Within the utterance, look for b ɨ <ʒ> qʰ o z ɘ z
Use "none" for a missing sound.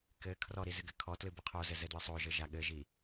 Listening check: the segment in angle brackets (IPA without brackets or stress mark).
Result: none